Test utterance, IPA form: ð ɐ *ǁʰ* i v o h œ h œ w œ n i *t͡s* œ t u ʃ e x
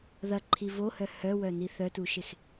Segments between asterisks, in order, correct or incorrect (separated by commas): incorrect, incorrect